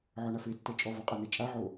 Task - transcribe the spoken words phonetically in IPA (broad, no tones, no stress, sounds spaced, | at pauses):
ʕ ɔ ɳ a f e tː ɛ t͡ʃʼ ɔ v ɔ qʼ a n ɛ t͡ʃʼ a ʕ o